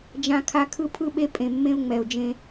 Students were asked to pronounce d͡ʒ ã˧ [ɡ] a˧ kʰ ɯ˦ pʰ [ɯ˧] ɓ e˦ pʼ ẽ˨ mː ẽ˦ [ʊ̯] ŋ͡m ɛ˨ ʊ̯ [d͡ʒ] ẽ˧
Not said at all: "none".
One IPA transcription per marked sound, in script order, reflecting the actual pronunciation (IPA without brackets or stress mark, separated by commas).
kʰ, ɯ˦, ʊ̯, d͡ʒ